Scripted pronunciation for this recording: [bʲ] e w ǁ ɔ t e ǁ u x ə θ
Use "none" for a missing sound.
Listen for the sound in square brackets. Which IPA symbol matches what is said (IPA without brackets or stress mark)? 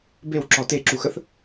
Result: b